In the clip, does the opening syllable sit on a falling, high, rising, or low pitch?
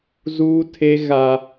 high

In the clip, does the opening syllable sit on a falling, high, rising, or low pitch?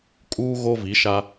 high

